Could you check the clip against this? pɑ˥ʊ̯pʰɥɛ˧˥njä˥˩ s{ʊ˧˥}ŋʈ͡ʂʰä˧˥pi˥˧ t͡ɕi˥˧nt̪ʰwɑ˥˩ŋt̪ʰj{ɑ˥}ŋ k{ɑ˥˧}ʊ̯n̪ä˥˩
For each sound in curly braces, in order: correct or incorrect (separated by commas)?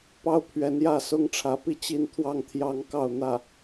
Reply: incorrect, correct, correct